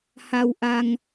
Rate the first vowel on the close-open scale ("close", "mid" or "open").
open